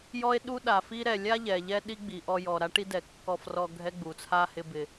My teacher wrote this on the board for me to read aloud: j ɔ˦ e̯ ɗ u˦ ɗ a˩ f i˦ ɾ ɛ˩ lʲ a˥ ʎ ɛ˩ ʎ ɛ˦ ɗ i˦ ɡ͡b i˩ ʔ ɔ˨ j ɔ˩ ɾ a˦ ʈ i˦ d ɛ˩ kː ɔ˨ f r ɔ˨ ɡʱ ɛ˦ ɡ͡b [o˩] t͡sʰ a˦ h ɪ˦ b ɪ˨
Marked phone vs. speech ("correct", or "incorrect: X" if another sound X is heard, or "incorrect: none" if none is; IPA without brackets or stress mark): incorrect: u˩